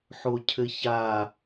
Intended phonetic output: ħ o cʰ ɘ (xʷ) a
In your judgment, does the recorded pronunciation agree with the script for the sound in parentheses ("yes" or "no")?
no